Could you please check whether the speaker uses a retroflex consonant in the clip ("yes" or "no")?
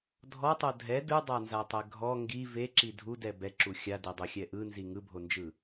no